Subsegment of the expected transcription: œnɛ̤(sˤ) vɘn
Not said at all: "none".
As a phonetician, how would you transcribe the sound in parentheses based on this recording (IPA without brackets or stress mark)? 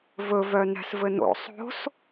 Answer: s